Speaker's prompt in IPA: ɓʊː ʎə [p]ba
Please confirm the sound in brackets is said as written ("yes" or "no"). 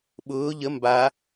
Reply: no